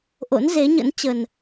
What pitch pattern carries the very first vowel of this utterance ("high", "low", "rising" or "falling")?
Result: rising